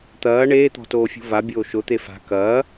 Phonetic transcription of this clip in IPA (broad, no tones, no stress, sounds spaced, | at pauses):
t̪ ɐː ɳ eː t̪ ɔ̤ t oː fʲ ṳ v a bʲ oː ʃ ʊ t̪ e f a̤ k ɐː